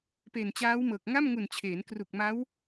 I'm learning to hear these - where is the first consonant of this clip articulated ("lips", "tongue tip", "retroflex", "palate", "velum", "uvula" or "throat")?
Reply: lips